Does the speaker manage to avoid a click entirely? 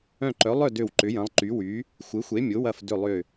no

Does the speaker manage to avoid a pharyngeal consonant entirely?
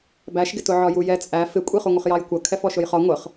no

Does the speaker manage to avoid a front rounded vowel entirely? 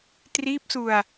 yes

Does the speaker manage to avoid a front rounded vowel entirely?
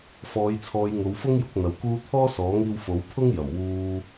yes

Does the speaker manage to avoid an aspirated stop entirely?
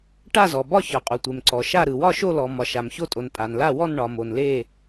yes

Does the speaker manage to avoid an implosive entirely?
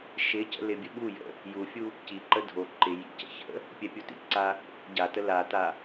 no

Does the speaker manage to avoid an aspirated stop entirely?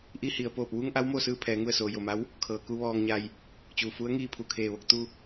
no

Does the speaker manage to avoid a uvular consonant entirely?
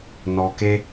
yes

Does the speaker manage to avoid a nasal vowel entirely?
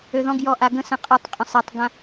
no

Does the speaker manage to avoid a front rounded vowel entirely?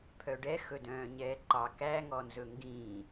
no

